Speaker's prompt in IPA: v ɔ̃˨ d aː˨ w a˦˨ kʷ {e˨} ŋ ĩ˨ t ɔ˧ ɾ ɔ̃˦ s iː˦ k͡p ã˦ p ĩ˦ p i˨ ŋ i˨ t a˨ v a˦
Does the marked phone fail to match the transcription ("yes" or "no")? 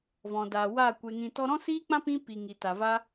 no